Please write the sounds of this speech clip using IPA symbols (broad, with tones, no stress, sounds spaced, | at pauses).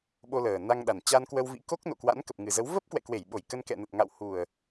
ɓ o˧ l əː˨˩ n a˧ ŋ ɗ a˨˩ n t͡ɕ a˧ n k w ə˧ w v ḭ˧˥ k o˦˥ k̚ n o̰˧˨ k w a̰˧˥ n k ə˨˩ p̚ ŋ ɨ˨˩ z ə˨˦ w v ə˦˥ p̚ k w ɛ̰˧˨ k w e˧˩ j ɓ o˧˩ j k ə˧ n k ɛ̰˧˨ n ə˨˩ t̚ ŋ a̰˧˨ w h u˨˩ ə̯